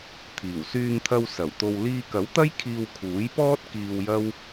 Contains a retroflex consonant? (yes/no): no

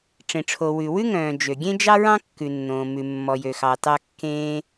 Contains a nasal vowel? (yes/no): yes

